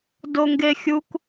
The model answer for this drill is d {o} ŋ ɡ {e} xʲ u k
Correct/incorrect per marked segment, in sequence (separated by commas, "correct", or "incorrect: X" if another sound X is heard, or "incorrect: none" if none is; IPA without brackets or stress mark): correct, correct